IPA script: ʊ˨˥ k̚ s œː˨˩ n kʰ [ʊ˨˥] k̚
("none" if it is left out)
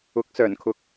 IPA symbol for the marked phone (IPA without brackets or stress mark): ʊ˨˥